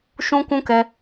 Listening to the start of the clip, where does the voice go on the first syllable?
high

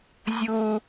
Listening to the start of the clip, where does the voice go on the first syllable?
high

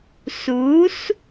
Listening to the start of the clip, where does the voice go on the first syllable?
rising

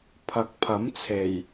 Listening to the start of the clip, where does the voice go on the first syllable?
rising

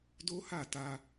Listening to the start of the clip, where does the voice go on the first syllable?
high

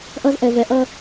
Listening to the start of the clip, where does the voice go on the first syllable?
high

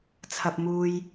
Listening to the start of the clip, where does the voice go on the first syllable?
low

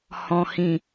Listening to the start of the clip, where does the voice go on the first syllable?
low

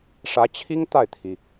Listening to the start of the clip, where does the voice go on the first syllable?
rising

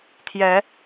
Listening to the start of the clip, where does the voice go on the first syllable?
rising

